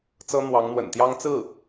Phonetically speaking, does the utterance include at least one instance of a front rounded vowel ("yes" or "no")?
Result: no